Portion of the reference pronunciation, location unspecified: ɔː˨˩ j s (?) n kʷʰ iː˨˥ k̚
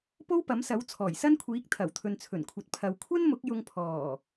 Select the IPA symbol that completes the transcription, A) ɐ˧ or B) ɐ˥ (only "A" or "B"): B